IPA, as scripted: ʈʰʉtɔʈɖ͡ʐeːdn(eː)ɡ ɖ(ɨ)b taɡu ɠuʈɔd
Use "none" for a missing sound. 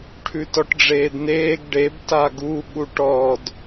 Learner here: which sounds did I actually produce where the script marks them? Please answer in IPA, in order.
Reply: eː, e

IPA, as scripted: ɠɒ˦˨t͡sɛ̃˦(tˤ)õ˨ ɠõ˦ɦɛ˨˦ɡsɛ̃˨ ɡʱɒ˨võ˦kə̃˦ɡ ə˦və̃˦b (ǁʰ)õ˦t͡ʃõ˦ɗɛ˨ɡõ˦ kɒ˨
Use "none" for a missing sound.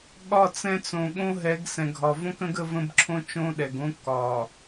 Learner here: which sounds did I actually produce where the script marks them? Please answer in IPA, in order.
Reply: t͡s, ǁʰ

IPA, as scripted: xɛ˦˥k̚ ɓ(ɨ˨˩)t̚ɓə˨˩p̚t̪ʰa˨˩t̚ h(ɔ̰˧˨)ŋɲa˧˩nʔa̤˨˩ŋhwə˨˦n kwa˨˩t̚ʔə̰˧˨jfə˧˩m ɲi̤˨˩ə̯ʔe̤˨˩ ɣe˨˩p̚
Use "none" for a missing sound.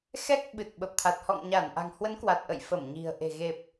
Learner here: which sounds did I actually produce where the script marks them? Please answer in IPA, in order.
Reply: ɨ˨˩, ɔ̰˧˨

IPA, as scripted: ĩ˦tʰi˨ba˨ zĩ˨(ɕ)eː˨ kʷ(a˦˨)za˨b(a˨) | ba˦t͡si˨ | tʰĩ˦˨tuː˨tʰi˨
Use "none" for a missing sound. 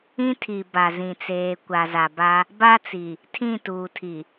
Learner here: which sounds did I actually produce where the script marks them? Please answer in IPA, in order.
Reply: t͡s, a˨, a˦

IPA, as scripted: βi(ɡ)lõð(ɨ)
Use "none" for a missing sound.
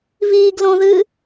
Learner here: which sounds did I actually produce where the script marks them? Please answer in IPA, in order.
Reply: ɡ, ɨ

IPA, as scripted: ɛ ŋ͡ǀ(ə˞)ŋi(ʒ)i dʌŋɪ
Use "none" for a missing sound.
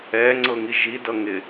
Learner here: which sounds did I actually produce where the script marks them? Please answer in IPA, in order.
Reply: ɤ, ʒ

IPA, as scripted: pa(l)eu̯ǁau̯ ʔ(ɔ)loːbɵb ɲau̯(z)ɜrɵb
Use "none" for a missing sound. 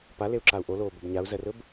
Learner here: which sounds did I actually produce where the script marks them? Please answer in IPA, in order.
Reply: l, o, z

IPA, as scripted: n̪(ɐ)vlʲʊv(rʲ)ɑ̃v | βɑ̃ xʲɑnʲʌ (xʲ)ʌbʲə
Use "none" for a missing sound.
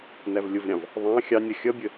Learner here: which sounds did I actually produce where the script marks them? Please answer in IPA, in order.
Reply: æ, ɾʲ, xʲ

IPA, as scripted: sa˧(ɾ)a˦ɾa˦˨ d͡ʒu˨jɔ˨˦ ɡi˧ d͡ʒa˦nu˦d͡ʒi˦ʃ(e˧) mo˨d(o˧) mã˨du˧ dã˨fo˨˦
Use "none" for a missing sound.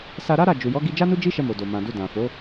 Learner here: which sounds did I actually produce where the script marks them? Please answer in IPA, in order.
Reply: ɾ, ɛ˧, o˨

